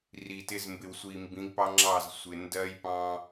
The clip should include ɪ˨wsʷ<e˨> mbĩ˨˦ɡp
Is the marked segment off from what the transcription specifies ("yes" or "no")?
yes